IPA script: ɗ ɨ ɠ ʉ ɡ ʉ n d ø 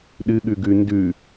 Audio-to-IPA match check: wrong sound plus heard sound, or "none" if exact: ø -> ʉ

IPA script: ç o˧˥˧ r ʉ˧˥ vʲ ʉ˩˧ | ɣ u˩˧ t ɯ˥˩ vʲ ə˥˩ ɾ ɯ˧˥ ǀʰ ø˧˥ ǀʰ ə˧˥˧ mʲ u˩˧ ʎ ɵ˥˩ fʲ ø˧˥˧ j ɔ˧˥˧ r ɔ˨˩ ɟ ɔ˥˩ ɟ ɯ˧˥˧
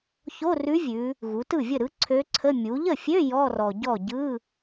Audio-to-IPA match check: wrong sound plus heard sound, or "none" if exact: ɵ˥˩ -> ə˥˩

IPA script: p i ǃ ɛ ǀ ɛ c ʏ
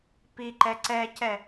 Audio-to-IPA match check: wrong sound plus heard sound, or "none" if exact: ʏ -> ɛ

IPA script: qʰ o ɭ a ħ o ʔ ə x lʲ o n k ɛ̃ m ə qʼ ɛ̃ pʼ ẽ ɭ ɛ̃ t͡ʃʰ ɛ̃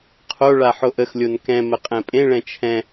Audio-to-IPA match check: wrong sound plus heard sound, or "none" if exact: none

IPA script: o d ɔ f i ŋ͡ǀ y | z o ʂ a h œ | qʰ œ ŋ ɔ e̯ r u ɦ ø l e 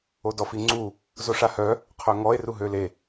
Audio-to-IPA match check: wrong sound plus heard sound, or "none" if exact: y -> u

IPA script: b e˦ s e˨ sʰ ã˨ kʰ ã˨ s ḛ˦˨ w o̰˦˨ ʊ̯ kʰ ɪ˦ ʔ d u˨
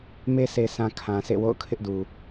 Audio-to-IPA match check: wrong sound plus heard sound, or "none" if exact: b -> m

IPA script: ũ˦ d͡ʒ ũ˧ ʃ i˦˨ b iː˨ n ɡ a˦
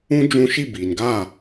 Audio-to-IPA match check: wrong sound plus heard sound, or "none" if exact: a˦ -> a˦˨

